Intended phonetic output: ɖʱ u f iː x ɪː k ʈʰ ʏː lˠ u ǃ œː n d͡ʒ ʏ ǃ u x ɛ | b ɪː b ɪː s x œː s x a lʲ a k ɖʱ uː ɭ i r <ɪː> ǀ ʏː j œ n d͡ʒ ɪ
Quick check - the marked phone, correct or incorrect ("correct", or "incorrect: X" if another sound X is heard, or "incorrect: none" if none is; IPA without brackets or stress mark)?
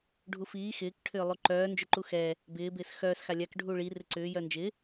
incorrect: ɪ